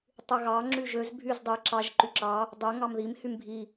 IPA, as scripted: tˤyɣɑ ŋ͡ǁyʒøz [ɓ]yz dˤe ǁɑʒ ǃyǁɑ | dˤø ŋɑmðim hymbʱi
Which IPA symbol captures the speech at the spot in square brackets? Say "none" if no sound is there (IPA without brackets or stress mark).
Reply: bʱ